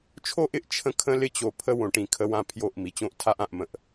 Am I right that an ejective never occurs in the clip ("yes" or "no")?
yes